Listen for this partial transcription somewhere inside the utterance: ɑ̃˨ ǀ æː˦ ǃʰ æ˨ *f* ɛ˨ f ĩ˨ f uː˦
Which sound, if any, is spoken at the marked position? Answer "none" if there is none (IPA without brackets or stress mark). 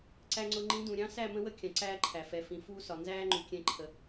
f